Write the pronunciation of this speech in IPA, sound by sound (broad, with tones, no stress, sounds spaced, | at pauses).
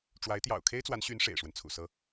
ʈ͡ʂ w a˧˥ ɪ̯ t̪ j ɑ̰˨˩ ʊ̯ kʰ e˥ ɪ̯ t͡s w a˧˥ n ɕ y˧˥ n ʂ ḛ˨˩ ɪ̯ ʂ w ə˦ n t͡sʰ ṵ˨˩ s ɤ˥